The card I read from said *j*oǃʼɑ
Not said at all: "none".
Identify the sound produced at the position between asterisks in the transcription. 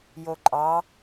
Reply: j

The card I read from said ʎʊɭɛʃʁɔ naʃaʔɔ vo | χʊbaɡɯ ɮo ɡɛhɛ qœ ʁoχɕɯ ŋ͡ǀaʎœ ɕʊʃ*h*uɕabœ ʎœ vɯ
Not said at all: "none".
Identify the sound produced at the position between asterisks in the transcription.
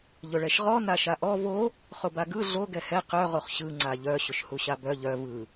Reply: h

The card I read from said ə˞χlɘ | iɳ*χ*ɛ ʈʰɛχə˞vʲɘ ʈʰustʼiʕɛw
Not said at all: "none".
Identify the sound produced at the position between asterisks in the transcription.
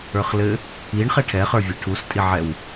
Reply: χ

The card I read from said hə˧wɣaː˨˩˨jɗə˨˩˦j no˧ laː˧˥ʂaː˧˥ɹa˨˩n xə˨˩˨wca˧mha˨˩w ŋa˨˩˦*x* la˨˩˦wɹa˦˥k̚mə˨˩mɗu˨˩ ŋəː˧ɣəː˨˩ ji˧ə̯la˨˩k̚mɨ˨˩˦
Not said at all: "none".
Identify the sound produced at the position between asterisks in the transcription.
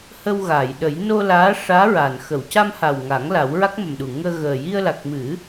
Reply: ŋ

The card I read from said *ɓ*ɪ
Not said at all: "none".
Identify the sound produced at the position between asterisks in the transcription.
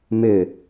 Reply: m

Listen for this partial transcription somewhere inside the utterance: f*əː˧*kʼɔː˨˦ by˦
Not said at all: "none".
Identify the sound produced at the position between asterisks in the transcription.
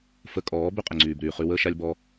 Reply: ə˧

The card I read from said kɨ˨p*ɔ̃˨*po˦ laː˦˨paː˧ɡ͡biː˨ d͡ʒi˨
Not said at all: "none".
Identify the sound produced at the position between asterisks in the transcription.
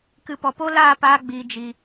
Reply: ɔ˨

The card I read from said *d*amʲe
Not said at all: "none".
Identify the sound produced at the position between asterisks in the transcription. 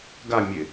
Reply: ɡ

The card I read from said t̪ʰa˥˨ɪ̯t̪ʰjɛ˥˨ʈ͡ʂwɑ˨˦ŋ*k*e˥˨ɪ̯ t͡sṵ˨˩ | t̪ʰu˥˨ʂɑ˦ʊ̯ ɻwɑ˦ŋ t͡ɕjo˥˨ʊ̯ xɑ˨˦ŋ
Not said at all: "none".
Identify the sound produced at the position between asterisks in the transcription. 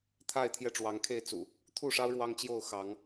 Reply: kʰ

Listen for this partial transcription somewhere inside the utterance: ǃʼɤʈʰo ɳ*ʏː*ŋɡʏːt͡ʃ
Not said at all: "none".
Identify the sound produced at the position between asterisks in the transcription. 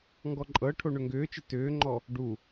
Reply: ʏ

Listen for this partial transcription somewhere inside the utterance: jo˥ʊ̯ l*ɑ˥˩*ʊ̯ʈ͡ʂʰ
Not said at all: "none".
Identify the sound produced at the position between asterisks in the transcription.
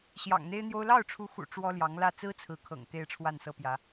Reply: ɑ˥˩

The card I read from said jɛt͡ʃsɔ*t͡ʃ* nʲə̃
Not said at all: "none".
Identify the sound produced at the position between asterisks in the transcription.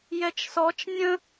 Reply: t͡ʃ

